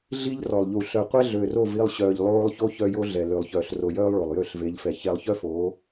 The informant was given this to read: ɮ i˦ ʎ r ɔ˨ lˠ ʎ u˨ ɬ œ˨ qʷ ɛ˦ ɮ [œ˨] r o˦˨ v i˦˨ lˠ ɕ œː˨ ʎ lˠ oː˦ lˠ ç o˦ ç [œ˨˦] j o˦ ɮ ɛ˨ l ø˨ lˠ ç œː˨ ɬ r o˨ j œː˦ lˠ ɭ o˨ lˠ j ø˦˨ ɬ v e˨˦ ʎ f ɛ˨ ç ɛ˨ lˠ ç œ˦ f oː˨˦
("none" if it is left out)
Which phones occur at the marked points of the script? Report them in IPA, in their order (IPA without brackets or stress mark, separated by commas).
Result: ø˨, œ˦